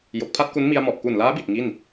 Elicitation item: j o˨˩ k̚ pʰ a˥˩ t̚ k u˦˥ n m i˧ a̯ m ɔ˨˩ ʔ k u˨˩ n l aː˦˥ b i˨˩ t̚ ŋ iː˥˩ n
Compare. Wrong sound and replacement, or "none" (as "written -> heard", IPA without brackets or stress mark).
iː˥˩ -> i˥˩